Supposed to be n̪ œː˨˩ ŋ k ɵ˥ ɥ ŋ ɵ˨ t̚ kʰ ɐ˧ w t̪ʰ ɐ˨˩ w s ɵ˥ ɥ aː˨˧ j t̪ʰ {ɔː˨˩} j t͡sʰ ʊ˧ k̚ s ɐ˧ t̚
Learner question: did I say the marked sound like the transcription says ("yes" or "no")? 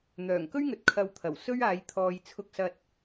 no